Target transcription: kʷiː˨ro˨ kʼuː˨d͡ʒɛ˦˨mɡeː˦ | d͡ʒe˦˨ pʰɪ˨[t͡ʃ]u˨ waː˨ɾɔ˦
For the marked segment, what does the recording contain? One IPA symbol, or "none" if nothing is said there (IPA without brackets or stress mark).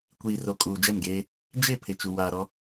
t͡ʃ